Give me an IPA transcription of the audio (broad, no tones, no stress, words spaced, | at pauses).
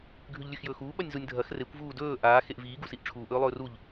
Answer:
ɡʱʉʎlʲʉxjɵːxuː ɓɐnʲzunʲ dʱɐx rekʷ vuːdɵː ʔaː xeʔviː ɡusiʔʈ͡ʂʰuːʔ ɵːlˠɵːruʎ